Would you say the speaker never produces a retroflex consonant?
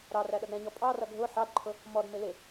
yes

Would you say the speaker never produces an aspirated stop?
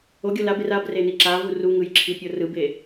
no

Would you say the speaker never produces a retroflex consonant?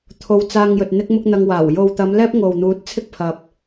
yes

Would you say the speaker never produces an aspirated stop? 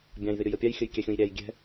yes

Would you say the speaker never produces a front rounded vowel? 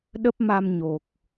yes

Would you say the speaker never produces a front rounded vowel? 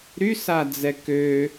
no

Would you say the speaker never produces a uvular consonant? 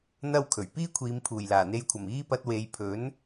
yes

